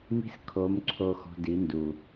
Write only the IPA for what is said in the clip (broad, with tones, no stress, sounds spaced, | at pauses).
m i̤˦ s kʰ o˨˦ m ǀʰ o˧ x ɔ̤˧ d i˨˦ n d u˨